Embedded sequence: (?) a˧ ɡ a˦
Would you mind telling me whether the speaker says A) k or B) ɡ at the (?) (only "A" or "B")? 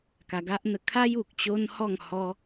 A